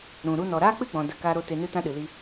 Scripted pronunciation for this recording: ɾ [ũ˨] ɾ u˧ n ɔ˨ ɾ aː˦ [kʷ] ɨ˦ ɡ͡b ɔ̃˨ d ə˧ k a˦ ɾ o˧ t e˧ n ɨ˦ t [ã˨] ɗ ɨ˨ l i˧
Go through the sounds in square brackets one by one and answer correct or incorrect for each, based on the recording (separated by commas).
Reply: correct, incorrect, incorrect